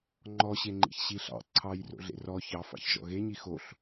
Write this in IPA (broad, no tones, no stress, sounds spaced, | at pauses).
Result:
ŋ͡ǃ ɔ ɕ e ŋ͡ǃ ḭ ç ɕ i ɬ ɑ̰ ǀʰ ɑ j r o̰ ɮ ḛ r ɔ ç ɑ f ɑ̰ ç ʒ ɔ̰ ɣ e ɲ i x o ɬ